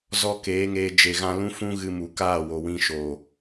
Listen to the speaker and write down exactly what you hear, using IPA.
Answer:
zɔ˦keː˨˦ŋeː˧ d͡ʒe˨ɣã˧lũ˦fũ˦ ɣɨ˧mu˨kaː˦˨wo˨ wĩ˧ʃo˨

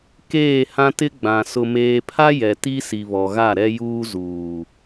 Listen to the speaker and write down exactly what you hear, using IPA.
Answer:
keː˦˨hã˦tɪ˦ ɡ͡bã˨ sʊ˨meː˨pʰa˦ jɛ˨ti˦ si˨βɔ˨ ɣa˦˨ɾɛ˦juː˦ zuː˨

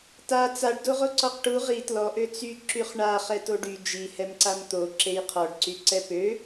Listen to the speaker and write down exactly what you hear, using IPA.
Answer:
ta t͡saɖdo ʁoǀɔqʈu ʁi tlɔʔø t͡sy ǁyχɳa χɛtoɖy d͡ʒihɛmǀam t̪o ǁejqʰɔɖǀy ǀɛpø

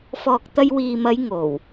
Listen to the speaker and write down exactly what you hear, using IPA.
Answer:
fɔː˨k̚t̪ɐ˧jwiː˨mɐ˨˧j ŋo˨˩w

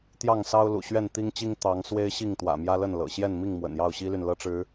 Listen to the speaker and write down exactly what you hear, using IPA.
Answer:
t̪jɑ˥˨ŋsɑ˦ʊ̯lṵ˨˩ ɕɥɛ˥˨nt̪i˦ŋt͡ɕi˦ŋ t̪ɑ˨˦ŋ swe˦ɪ̯ɕi˥˨ŋ t̪wä̰˨˩mjä˦lə˥˨n lɤ̰˨˩ ɕjɛ˥˨nmi˥˨ŋ mwə̰˨˩njɑ˥˨ʊ̯ɕi˦ly˨n lɤ˦ʈ͡ʂɻ̩˨˦

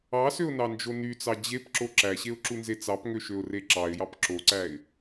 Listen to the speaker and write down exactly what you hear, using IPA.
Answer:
ɑsøʊ̯nɑnd͡ʒo nyt͡sɑ d͡ʑepǁo ǁæɕeʊ̯ǁunze t͡sɑpŋøʃøʊ̯re ǁɑɪ̯jɑp ǁoǀæɪ̯

